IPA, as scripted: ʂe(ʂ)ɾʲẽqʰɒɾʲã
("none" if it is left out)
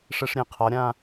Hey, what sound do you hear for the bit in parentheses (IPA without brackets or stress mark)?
ʂ